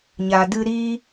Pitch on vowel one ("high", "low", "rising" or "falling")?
low